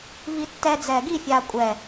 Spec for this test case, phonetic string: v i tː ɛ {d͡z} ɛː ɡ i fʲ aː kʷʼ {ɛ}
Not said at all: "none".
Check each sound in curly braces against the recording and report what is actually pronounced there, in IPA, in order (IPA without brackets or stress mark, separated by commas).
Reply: d͡z, ɛ